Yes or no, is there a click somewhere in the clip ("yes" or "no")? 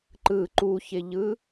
yes